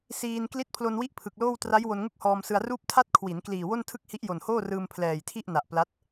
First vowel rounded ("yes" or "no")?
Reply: no